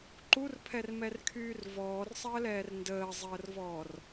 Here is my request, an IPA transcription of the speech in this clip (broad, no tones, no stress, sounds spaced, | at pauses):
ǃ u r pʰ ɛ r m ɛ r kʰ yː r v ɔː r sˤ əː l ɛː r n d əː zˤ əː r v ɔː r